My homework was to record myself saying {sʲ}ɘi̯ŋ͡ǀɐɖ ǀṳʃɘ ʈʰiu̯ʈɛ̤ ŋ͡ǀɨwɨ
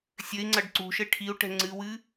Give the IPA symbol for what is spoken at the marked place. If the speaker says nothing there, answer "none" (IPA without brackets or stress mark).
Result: sʲ